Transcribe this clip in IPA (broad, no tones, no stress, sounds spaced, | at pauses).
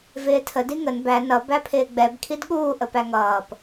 v ɪː tʰ ə d i ŋ ə n b æ n ʌ b æ pʰ ɪː ɡ͡b ɛ b kʰ i d ɠ uː ʔ ə p æ ŋ ʌː p